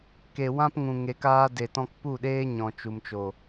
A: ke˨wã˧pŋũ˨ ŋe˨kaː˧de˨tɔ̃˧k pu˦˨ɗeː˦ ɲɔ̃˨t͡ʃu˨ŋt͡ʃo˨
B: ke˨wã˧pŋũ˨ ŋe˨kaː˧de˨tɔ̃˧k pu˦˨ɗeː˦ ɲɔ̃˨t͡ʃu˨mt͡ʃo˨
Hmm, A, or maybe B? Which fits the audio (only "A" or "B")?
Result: B